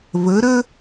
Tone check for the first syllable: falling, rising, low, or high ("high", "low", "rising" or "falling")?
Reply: rising